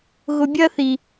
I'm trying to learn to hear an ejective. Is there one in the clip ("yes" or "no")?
no